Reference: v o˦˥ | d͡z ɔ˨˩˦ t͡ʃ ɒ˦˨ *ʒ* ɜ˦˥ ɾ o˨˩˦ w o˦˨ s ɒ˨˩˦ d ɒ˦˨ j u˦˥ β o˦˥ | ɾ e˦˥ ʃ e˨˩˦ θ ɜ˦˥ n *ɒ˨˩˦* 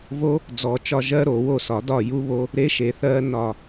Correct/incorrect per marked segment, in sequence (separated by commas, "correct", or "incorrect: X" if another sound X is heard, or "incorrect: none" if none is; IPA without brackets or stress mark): correct, incorrect: ɒ˦˨